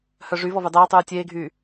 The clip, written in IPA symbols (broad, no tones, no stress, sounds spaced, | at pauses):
h œ ʐ y v ɔ v y dˤ eː tˤ yː tʲ eː ɡʱ yː